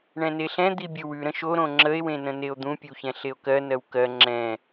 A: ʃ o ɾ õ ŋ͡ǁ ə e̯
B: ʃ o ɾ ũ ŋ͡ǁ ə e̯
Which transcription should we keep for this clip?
A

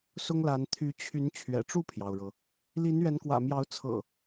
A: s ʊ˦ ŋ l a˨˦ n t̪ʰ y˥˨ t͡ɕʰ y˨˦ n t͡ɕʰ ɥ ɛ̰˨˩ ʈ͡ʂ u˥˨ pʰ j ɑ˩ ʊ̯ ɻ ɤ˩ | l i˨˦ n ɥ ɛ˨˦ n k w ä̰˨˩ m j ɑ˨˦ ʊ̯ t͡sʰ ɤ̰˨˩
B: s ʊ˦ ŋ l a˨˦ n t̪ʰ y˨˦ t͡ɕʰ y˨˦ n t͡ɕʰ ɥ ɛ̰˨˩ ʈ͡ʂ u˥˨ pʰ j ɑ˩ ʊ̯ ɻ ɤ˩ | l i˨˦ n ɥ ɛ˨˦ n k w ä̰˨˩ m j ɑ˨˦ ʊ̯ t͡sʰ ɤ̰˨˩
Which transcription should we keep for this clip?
B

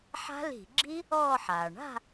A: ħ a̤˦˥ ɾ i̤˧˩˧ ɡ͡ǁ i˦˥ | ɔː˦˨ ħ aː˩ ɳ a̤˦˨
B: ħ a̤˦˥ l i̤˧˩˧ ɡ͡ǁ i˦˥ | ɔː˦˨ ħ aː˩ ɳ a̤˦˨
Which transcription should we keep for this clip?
B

